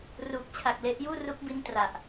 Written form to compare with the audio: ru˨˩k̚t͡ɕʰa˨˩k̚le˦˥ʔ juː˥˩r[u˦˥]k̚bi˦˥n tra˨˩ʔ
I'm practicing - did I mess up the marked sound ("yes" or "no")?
no